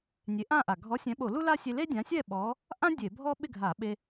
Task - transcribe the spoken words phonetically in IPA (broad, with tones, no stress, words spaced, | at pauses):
nʲe˨˥ʔã˥˨ʔa˨˩ ɡʱɔ˨˥sʲɛ̃˨˥ɓo˧˩˧ lu˥la˥ sʲe˧le˥dʲã˨˥sʲɛ˥˨ ɓɔ˨˥ | ʔã˥ dʲe˧˩˧bʱɔ˥ ɓɪ˥˨ɡʱa˧˩˧ɓe˧